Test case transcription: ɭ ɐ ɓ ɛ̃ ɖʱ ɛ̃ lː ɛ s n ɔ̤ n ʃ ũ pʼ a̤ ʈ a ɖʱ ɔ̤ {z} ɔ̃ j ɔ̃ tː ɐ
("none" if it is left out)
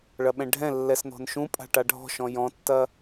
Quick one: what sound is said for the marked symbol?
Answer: ʃ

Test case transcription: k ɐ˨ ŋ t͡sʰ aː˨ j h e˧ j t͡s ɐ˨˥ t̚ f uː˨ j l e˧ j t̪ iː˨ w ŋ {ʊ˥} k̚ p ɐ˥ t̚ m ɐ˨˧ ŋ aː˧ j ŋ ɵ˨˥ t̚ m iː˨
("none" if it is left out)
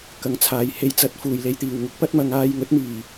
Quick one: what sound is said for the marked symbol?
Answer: ʊ˥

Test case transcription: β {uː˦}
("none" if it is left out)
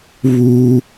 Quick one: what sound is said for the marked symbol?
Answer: uː˦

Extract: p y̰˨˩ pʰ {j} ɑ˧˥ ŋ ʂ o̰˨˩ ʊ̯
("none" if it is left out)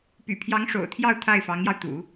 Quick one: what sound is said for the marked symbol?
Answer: j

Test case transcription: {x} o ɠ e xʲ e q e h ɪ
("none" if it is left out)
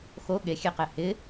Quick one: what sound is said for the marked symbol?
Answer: x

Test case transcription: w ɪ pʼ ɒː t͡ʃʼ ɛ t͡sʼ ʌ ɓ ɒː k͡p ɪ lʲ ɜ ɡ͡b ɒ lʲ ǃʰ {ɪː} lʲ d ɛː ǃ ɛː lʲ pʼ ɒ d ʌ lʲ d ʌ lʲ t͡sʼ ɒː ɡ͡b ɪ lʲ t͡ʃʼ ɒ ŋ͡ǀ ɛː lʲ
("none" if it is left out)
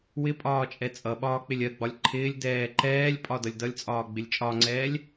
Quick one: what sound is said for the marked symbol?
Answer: ɪː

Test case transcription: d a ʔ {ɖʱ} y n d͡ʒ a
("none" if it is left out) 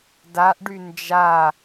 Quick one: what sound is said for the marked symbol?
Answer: ɖ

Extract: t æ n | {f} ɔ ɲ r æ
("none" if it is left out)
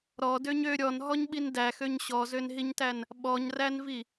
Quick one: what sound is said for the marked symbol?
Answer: ɓ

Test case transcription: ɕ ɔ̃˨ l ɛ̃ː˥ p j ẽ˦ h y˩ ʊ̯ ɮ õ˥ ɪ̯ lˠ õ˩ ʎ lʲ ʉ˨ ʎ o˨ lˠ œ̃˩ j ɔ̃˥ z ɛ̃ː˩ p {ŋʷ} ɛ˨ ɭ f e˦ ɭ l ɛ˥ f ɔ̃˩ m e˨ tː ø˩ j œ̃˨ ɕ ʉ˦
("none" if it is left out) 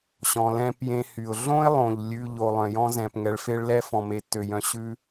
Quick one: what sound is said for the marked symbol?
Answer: ŋ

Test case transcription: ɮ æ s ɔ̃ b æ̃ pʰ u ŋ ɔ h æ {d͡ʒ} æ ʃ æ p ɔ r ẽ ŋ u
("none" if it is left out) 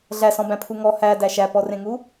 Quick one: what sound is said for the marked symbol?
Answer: d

